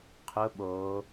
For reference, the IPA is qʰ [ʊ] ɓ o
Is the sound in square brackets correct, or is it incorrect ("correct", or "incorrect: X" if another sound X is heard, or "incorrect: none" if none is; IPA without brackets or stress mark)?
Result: correct